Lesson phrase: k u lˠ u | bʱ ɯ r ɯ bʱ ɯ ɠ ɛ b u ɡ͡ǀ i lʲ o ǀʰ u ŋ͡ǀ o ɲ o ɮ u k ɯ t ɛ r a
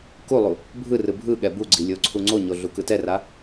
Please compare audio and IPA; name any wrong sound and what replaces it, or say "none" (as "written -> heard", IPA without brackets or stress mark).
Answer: none